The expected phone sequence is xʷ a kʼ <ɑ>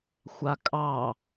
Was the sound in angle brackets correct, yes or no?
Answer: yes